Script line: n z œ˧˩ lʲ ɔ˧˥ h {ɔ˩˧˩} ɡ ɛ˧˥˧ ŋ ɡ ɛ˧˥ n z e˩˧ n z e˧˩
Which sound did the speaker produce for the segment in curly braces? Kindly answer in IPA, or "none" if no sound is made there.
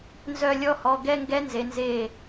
ɔ˩˧˩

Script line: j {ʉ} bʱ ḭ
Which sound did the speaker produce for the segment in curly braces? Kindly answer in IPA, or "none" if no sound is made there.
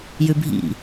ʉ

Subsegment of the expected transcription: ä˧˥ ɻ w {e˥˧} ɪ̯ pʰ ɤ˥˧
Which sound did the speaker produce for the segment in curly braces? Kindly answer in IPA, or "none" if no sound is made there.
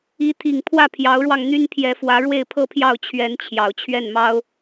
e˥˧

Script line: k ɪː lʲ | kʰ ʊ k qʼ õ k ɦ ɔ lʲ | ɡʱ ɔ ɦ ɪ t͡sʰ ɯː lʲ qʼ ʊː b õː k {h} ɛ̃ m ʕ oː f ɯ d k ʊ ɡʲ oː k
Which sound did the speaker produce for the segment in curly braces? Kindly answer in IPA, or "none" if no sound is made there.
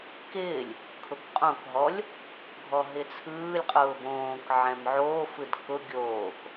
ʕ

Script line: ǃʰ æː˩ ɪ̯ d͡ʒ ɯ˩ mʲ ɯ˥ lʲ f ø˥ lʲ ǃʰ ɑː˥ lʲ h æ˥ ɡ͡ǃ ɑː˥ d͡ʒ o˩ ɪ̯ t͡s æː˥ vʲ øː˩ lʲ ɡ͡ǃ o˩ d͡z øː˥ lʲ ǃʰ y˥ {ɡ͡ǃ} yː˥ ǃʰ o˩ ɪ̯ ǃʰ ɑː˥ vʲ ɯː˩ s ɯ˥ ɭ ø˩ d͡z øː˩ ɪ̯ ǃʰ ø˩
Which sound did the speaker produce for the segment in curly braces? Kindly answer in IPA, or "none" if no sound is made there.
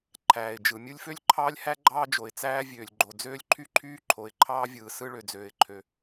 ǃʰ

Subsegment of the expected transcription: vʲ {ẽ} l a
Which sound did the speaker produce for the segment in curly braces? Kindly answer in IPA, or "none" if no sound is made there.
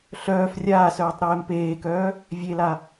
e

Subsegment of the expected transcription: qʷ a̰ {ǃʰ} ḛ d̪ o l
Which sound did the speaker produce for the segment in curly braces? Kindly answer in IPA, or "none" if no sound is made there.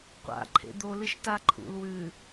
ǃʰ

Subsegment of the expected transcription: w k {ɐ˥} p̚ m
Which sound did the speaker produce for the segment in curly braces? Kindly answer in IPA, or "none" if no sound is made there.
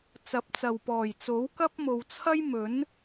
ɐ˥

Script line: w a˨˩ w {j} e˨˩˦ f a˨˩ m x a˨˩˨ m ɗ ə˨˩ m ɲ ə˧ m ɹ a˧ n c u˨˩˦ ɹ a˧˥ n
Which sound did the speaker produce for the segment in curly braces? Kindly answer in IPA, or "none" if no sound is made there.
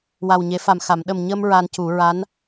ɲ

